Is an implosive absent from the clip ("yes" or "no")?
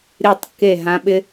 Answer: no